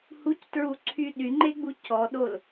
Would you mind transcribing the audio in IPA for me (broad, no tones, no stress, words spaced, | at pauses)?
huctɹuǀʰy ɗyŋ͡ǃeɡ͡bu cɔɗol